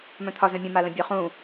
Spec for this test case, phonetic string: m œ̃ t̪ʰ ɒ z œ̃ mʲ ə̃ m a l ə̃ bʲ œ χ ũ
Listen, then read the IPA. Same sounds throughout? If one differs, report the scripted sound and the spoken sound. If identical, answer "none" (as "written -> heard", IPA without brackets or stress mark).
none